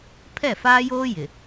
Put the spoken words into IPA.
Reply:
pʰ ɛ˦˨ f aː˦ j oː˦ j ɪ˨

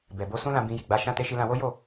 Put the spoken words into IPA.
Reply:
b ɛ˨ b o˧ s ũ˦ l ã˧ b ĩ˧ j i˨ ɡ͡b a˨˦ ʃ ã˧ t e˧ ʃ i˧ l ã˧ w o˦ j o˦˨

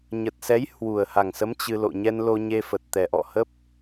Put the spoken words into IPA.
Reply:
ɲ ə˨˩ t̚ s ɛ˨˦ j h w u˨˩ ə̯ h a˨˩ ŋ s ə˨˦ m t͡ɕ ɨ˧ l o̰˧˨ ɲ ɛ˧ n l o˧ ɲ e˧ f ə˨˩ t̚ t̪ ɛ˨˩ ʔ ɔ̰˧˨ h ə˦˥ p̚

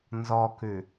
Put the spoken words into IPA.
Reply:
n z ɔ k ʉ

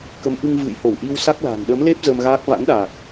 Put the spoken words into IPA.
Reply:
k ə˨˦ m ʔ ɨ˧ ŋ v ɨ̰˧˨ j h o˧˩ w ʔ i˧ w s a˦˥ k̚ l a̤˨˩ n ɗ ə˨˦ m l e˦˥ p̚ z ə˧ m ɣ aː˦˥ k̚ v a̰˧˥ n ɗ a˨˩ k̚

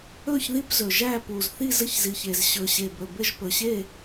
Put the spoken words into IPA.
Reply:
ɵ˥˨ ç ð i˥˨ p z ɵ˨˩ ʒ æ˥˨ p u˨˩ z θ i˥˨ z ɘ˥˨ ç z i˨˩ ç e˨˩ z ɕ ɵ˨˩ ɕ e˨˩ b ɵ˨˩ b ɘ˥˨ ʒ p ɵ˨˩ ɕ e˥˨

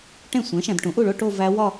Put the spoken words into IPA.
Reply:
ʈ ẽ˥˩ sʷ ẽ˩˥ ʃ æ̃˨ d ʈ ũ˩˥ ʔ u˥˩ ɭ o˥˧ ʈ o˥˧ v æ˦˥ w ɒ˥˧

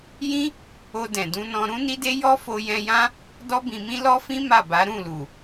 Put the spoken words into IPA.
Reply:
j ĩ˦ | o˧ d ɛ̃˨ d ũ˧ n ɔ̃˧ ɾ ũ˦ n i˦ d e˦ j ɔ˦ f o˧ j ɛ̃˧ j ã˦ | d ɔ˦ b ĩ˧ m ĩ˦ l ɔ˦ f ĩ˦ m a˦˨ b a˨˦ ɾ ũ˦˨ l u˨

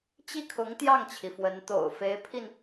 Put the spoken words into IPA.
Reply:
t͡ɕ i˥˩ kʰ ʊ˧˥ ŋ t̪ j ɑ˥˩ ŋ t͡ɕʰ i˩ f w ə˧˥ n t̪ o̰˨˩ ʊ̯ f e˧˥ ɪ̯ pʰ i˧ n

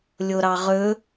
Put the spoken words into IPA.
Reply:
lʲ o ɾ ɑ ʁ ɵ

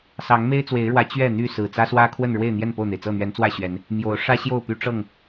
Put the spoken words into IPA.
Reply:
s ɑ˨˦ ŋ m e˦ ɪ̯ t͡s w e˨˦ ɪ̯ ɻ w ä˨˦ t͡ɕ ɥ ɛ˥˨ n̪ y˥˨ s ɹ̩˨˩ t͡s ä˦ s w ä˦ kʰ w ə˥˨ n ɻ w e˥˨ ɪ̯ n̪ j ɛ˥˨ n p o˥˨ ʊ̯ n̪ e˩ ɪ̯ t͡s ɤ˥˨ n̪ ɥ ɛ˨˦ n t͡s w ä˥˨ ɕ ɥ ɛ˨˦ n | m j o˨˦ ʊ̯ ʂ ä˦ ɕ j o˥˨ ʊ̯ p y˦ ʈ͡ʂ ɤ˥˨ ŋ

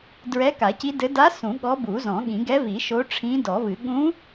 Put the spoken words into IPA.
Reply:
d ɹ ɛ˧˥ k a˨˩˦ c i˧˥ d ɘ˧˥ d a˧˥ s ũ˨˩˦ ɠ ɔ˧˥ b u˨˩˦ z ɔ̃˨˩˦ ɠ ĩ˨˩˦ ɡ ɛ˧˥ v i˨˩˦ ʃ o˧˥ ʈ͡ʂʰ ĩ˧˥ d ɔ˨˩˦ v ɨ˨˩˦ ɠ ũ˧˥

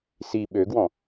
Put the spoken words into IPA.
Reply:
s i ɓ ø ɡ w ɔ̃

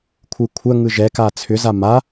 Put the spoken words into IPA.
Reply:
kʷʰ ɯ kʷʰ ɜ ŋ ɯ ʒ ɛ k a t͡sʰ ʏ z a m a

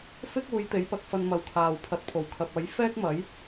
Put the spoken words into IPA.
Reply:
f ɪ˥ k̚ uː˨˧ j t̪ e˨˥ j p ɐ˨˥ k̚ f ɐ˧ n m ɐ˨˧ w kʰ aː˨ w pʰ ɐ˨˥ t̚ pʰ o˨˩ w kʰ ɐ˨ p̚ ɐ˨˥ j f ɛː˥ k̚ m ɐ˨˥ j

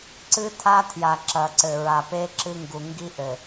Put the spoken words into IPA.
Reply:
ǀ ɨ˦ tʰ a˦ tʰ j a˨ ǁ ɐ˨ ǀ ɘ˨ ɹ a˨ p e˦ ǁ ɨ˦ ŋ ɡ u˨ ŋ ɡ i˦ ʔ ɘ˨

